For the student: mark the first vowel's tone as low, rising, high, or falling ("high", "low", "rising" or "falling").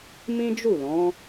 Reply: high